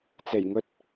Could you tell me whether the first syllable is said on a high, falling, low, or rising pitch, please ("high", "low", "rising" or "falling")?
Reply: low